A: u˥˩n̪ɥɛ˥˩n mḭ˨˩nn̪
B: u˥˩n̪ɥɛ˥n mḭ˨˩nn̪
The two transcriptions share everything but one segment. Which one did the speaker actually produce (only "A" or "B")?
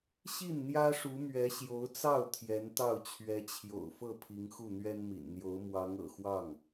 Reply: B